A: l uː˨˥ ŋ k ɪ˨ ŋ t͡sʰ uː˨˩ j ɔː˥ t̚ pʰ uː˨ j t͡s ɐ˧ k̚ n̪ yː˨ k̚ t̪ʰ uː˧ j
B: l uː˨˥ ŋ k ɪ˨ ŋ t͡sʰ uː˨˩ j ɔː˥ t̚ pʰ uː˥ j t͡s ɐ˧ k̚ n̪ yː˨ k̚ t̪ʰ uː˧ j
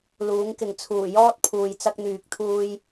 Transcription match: A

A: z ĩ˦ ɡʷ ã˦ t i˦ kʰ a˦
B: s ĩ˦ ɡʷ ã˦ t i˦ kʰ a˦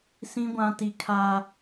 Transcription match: B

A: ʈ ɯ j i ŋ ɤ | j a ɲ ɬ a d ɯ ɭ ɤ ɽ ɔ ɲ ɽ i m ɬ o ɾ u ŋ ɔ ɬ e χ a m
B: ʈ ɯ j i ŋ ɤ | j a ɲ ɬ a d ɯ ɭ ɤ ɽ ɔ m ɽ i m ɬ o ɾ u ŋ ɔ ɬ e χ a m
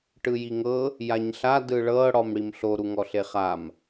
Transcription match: B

